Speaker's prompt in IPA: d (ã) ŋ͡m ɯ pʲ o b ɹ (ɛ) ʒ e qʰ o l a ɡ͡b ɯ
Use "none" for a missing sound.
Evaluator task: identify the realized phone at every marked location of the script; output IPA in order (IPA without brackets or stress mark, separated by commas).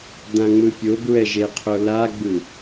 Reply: ã, ɛ